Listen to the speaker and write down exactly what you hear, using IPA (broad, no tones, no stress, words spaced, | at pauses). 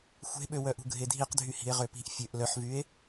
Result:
xʷe̤ɓøwœʔṳ ɡʱedʱiqdʱy hi̤e̯ʁøpi̤ʔ fʲøʔ lœħvye̯